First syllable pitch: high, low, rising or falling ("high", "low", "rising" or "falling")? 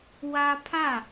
high